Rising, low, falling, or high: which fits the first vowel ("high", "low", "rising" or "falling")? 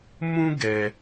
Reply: high